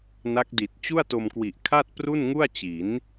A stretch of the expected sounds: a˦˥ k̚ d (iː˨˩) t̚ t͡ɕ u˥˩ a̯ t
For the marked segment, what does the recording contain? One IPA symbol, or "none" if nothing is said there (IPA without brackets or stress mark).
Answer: i˨˩